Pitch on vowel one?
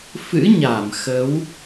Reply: rising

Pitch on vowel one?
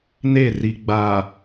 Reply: falling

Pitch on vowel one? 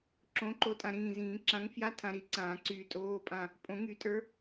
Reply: rising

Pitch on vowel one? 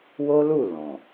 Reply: high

